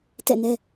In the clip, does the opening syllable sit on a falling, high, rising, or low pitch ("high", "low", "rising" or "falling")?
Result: falling